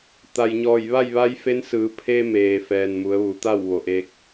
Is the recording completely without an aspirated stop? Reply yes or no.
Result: no